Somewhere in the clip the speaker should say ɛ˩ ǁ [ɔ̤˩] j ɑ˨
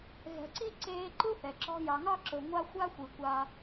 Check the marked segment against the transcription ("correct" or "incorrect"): incorrect